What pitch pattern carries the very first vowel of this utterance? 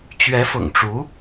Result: rising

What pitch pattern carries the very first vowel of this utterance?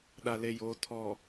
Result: low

